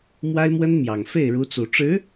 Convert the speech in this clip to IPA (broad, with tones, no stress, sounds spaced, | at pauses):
m w a˥ ɪ̯ m w ə˥ n m j ɑ˨˩ ŋ f e˥˩ ɪ̯ ɻ u˧˥ t͡s u˨˩ ʈ͡ʂ ɻ̩˧˥